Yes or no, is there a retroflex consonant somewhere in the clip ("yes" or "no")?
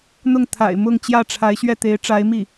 yes